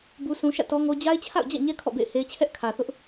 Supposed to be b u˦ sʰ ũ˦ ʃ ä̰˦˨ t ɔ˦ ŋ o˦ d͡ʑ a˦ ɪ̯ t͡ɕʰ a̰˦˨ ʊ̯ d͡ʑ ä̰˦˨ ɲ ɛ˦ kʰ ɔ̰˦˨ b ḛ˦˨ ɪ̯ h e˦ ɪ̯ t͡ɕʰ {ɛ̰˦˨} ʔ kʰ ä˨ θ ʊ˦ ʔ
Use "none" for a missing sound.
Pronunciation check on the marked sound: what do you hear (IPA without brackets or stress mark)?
ɛ˦